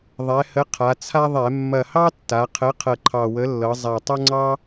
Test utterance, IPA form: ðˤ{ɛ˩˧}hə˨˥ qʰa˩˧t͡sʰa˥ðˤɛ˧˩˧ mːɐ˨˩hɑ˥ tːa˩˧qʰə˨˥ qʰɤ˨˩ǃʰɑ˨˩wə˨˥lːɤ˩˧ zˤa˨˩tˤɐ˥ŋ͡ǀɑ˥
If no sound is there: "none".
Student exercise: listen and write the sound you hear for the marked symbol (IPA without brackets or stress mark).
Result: ɛ˩˧